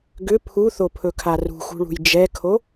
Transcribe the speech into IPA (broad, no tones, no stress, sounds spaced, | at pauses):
ɡ ʏ pʰ u θ o pʰ ɵ kʰ a r ṳ x ṳ ɭ ṳ j d͡ʒ ɛ kʰ o